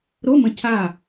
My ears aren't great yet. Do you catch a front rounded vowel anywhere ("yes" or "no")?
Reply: no